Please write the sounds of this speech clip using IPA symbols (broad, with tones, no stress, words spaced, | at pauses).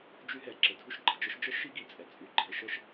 d͡ʒy˥ɦɛ˩ ǁə˩dʱu˥ʃɡ͡ǃə˩d͡ʒə˥ʃ d͡ʒə˥ʃi˥ɡi˩ t͡sʼɛ˩ t͡sʼy˩ɡ͡ǃɛ˩ ʃə˥ʃ